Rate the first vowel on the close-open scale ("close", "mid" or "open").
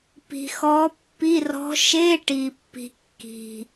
close